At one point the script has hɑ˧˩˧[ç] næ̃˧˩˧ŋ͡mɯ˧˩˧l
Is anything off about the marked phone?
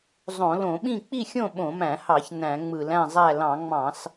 no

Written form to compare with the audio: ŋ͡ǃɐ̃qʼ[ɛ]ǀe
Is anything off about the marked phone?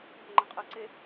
yes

